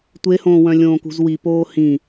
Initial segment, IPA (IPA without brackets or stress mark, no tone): tʷ